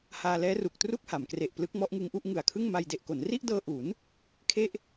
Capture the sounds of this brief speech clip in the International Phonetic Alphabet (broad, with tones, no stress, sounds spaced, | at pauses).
h aː˧ l ɛː˦˥ r u˨˩ k̚ t r u˥˩ k̚ h a˩˦ m k r e˨˩ ʔ p l ɯ˦˥ k̚ m ɔ˦˥ ʔ ŋ ɯ˦˥ ŋ ʔ u˦˥ ʔ ŋ ɯ˨˩ a̯ kʰ ɯ˥˩ ŋ m a˧ j d e˨˩ ʔ k o˩˦ n r i˥˩ ʔ d ɤː˧ ʔ u˩˦ n | kʰ e˥˩ ʔ